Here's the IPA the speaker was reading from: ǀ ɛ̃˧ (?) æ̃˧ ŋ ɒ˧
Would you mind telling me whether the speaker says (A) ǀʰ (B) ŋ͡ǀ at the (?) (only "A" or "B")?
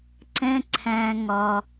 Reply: A